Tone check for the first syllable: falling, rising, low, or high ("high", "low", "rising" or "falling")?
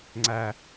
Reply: high